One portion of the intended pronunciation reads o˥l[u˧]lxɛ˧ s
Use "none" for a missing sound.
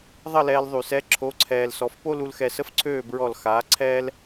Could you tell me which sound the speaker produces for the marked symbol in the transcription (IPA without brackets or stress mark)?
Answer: u˧